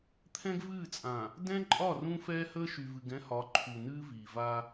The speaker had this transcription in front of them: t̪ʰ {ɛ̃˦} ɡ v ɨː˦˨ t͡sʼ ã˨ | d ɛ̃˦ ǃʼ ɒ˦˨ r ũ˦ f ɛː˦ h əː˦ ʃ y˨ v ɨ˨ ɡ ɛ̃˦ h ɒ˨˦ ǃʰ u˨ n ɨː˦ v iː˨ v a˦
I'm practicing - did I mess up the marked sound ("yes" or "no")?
no